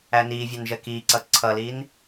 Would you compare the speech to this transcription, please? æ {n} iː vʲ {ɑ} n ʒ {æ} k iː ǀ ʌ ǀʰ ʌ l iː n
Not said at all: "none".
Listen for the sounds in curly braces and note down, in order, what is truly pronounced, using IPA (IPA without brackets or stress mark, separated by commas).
n, ɑ, ɜ